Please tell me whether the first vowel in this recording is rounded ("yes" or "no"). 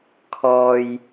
yes